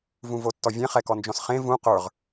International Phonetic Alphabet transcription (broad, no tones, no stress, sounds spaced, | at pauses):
v ũ v o tː ɔ vʲ ɛ̃ χ ɛ k ɔ n d͡ʒ ɔ̃ s χ ẽ v ũ q ə˞ ʁ